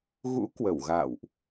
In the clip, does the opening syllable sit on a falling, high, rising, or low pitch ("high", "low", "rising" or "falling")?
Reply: rising